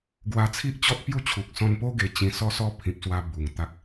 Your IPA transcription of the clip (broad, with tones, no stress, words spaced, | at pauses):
ɡwa˧t͡sʰi˦ʔt͡ɕɔ˦t̚pju˦ t͡ɕʰu˨k̚sɔ̃˧npo˦ ɡe˧ t͡ɕĩ˧ sɔ˦sɔ˦ pʰĩ˨p̚swa˧ bu˨˩ŋt̪a˦k̚